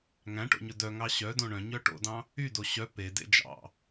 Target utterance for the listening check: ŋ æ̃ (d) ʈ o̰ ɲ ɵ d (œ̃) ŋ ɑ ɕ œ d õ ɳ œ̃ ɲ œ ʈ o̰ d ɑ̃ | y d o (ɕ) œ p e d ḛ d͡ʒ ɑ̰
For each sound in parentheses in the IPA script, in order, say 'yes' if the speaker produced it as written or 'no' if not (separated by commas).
no, no, yes